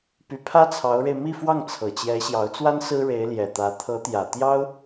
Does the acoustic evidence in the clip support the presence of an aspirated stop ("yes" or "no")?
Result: yes